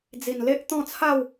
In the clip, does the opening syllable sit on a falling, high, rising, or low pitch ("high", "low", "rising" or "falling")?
low